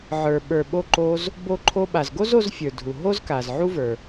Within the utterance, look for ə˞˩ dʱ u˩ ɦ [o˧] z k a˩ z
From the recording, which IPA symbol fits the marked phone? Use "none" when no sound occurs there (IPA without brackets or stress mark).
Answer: o˥